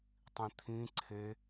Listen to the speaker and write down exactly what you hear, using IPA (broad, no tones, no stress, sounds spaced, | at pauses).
tˤ ĩ t̪ʰ ĩ ǀʰ e